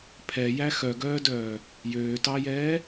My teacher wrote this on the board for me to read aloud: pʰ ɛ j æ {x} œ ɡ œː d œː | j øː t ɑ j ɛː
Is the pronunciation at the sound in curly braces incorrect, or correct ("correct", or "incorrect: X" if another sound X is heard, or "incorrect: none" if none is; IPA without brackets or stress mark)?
correct